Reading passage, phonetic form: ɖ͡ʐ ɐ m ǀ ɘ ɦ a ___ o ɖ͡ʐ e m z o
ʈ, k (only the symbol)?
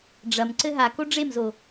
k